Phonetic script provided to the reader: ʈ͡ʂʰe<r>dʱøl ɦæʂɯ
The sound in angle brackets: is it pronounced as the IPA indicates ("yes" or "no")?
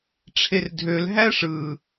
yes